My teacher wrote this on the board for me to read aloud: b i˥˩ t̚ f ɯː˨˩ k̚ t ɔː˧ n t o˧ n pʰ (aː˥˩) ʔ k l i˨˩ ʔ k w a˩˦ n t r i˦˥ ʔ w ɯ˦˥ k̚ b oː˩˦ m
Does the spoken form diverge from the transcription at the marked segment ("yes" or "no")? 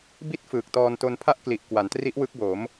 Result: yes